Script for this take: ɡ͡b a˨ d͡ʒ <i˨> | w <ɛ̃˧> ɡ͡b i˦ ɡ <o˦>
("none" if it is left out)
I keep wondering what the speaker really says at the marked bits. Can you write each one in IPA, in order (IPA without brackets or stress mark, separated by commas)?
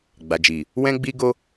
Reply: i˨, ɛ̃˦, o˦